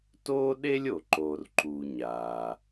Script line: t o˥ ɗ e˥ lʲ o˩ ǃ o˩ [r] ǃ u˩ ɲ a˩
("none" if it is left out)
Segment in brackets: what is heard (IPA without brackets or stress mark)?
r